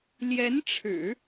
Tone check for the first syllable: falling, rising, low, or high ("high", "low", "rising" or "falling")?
rising